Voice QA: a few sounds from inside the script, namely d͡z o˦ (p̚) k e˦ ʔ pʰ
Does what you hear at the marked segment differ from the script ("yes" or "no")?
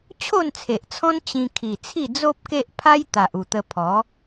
no